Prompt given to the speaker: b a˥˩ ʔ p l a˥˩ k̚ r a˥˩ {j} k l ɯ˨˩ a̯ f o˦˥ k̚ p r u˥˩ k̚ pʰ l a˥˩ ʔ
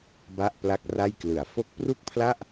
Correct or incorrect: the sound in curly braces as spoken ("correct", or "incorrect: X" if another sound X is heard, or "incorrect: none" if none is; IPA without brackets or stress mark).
correct